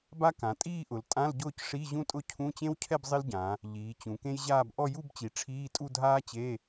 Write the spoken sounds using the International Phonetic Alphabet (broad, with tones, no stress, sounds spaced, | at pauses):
b a˥ k ã˩˧ tʼ iː˥˧ ʔ ʊ˩˧ l tʼ ã˧˥˧ l ɟ ʊː˥˧ c ʂ i˧˥˧ ʑ ũ˥ tʼ ʊ˥˧ cʰ ũ˧˥˧ t͡ɕ ẽ˥ w cʰ ɛ˥˧ b zˤ ɪ˥ l ɟ ã˩˧ | ʎ iː˩˧ t͡ɕ ũ˩˧ k ẽ˥ j ʑ aː˥˧ b ʔ ɔ˥˧ j u˥˧ b t͡ɕ i˩˧ ʈ͡ʂʰ iː˧˥˧ tʼ u˥˧ dʱ aː˥ t͡ɕ e˧˥˧